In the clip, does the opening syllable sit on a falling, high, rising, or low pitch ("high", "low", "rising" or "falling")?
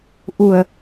low